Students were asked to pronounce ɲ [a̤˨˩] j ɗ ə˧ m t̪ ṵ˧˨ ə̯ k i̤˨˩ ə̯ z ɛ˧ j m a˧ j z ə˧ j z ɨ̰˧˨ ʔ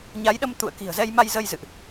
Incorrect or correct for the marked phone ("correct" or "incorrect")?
incorrect